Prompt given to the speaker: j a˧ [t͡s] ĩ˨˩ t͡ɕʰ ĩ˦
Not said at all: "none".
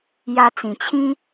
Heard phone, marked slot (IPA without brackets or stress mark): t͡s